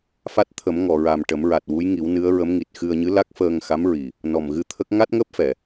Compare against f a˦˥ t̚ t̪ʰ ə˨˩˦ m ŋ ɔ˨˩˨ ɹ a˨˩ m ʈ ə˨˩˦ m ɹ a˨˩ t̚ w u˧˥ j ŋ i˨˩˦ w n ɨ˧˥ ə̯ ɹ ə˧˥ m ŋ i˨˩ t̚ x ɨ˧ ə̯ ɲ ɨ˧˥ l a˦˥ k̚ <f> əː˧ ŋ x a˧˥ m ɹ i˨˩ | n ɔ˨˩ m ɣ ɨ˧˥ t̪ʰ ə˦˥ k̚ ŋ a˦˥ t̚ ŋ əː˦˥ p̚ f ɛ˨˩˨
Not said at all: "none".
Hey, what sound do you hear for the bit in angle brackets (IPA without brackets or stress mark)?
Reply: f